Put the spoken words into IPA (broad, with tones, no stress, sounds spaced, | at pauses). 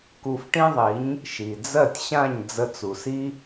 k u˧ f ʈ ĩ˥ ðˤ i˩˥ ɲ | ʃ i˩ d͡z ɜ˥˩ tʲ ɕ ã˥˩ ɲ d͡z ə˧ t͡s u˩ s i˥